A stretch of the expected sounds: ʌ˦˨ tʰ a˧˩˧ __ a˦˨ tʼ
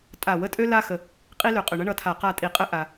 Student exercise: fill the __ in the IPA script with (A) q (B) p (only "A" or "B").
A